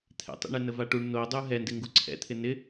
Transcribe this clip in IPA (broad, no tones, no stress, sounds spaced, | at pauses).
t̪ʰ ɛ̰ tˤ ḭ ɳ ɛ n ə v a ʈ u ɳ n o dˤ u ɦ ɛ n d ɪ ŋ ɡ u ǀʰ ɛ̰ t̪ʰ ɪ n ɪ